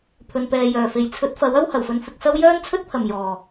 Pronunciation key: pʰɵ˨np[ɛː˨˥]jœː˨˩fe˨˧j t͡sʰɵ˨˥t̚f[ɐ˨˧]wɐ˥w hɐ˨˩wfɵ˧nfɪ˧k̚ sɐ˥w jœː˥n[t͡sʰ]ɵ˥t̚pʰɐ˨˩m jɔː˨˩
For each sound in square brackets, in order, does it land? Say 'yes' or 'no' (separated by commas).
no, no, yes